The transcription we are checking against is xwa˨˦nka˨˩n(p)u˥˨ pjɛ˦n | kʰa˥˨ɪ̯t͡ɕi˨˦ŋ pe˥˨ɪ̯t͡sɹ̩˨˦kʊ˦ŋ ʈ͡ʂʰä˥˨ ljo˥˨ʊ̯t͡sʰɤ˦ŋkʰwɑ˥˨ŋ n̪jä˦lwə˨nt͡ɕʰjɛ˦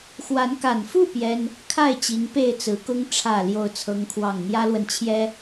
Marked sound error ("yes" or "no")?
yes